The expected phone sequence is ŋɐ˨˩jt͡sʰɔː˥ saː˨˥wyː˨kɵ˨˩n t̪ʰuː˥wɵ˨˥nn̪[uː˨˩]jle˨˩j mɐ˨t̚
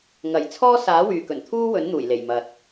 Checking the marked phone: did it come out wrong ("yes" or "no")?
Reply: no